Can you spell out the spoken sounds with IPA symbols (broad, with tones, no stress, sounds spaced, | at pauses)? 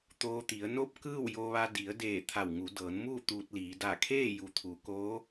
t̪ oː˧ t̪ i˩˧ ə̯ n o˥˨ p̚ k ɯː˥˨ w j o˧ ʋ a˧ d i˩˧ ə̯ d eː˧˩ t̪ʰ a˧˩ w ŋ u˩˧ d ɤː˩˧ n m uː˥˨ t̪ uː˧ t̚ l iː˩˧ d a˧˩ kʰ eː˥˨ j u˩ t̪ʰ u˩˧ k oː˧˥